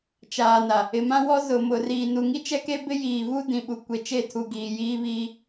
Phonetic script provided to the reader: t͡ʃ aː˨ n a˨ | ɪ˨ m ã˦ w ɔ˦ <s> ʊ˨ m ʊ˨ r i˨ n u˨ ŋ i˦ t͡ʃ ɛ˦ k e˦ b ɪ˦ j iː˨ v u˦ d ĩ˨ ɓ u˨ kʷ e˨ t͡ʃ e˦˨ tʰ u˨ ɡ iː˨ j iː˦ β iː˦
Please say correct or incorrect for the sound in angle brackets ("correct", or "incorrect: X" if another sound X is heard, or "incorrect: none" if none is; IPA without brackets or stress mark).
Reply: incorrect: z